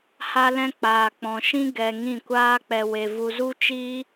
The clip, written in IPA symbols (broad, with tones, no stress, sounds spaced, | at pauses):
h a˧ l ɛ̃˧ k͡p aː˨ k͡p ɔ̃˨ ʃ ĩ˦ ɡ ɛ˧ ŋ ĩ˦˨ kʷ aː˦ k͡p ɛ˧ w e˧ v u˧ z u˦ t͡ʃ iː˦